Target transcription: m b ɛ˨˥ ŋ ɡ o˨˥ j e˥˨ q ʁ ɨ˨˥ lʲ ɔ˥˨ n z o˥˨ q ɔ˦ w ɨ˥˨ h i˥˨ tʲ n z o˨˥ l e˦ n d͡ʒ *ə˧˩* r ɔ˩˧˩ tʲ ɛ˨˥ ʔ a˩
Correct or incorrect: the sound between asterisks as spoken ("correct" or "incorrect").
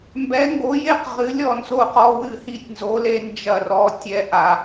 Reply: incorrect